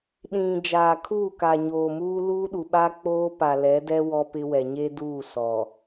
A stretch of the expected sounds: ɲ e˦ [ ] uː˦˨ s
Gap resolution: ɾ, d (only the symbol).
d